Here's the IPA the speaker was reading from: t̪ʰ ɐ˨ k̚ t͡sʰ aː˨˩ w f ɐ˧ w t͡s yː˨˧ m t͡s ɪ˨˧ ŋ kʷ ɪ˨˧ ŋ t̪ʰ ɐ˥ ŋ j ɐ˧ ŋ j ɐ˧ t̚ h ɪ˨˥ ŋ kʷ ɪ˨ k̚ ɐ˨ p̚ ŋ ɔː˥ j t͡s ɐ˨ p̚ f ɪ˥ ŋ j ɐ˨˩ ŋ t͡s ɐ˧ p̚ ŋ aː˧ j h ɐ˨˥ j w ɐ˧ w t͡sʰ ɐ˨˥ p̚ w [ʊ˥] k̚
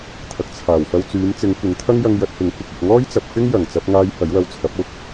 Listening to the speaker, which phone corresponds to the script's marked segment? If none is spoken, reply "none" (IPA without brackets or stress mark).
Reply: ʊ˥